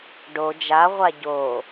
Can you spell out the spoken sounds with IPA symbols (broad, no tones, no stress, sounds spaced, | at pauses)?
ɖ o d͡ʒ a ʁʷ a ɟ oː